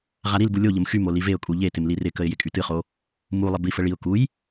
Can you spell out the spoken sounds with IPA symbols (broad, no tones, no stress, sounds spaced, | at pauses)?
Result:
ʁ a ɾ i l b u lʲ o ʎ ə m x y m o l i v e ʊ̯ kʼ u ʎ e t ɪ m l i r ɪ k ə ɪ̯ j ɪ kʼ y t ɨ χ o | m u lˠ ɪ b i f ə ɭ i ʊ̯ k u j